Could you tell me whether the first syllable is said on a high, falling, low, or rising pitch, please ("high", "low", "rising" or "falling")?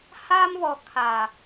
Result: high